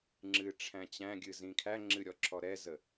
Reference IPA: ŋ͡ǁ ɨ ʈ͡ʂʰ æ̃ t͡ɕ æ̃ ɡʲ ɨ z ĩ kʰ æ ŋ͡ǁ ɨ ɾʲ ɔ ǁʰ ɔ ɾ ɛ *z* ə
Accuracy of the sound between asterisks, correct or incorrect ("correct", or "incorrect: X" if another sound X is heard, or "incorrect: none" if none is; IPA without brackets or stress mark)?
correct